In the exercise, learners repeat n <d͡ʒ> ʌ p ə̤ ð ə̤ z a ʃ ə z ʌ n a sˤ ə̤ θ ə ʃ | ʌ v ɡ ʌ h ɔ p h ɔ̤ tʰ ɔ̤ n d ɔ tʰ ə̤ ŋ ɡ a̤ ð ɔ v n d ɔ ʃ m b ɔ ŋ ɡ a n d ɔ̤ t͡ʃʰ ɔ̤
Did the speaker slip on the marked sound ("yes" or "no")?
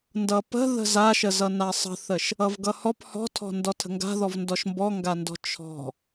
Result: yes